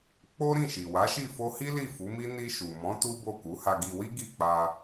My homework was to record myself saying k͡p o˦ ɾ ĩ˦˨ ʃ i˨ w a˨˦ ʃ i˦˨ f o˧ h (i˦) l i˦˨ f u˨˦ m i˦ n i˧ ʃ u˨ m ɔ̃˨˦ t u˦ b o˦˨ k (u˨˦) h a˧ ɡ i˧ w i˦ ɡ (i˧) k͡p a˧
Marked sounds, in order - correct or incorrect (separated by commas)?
correct, correct, incorrect